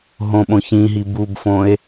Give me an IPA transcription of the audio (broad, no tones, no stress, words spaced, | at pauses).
ɦõɓõçĩɦi bubfõe̯